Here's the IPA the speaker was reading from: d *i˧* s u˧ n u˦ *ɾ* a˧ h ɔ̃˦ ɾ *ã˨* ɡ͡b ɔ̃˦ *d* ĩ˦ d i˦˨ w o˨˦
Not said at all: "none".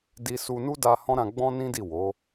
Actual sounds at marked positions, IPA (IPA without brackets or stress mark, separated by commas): i˧, d, ã˧, n